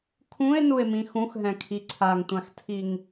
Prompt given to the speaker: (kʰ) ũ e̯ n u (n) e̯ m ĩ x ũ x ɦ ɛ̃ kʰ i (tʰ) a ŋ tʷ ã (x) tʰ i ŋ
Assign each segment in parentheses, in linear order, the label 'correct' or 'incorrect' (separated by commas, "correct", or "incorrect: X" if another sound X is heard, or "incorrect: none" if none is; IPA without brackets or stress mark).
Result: correct, incorrect: none, incorrect: ǀʰ, correct